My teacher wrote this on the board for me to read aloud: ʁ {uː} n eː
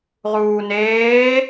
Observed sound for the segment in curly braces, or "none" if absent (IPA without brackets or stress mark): uː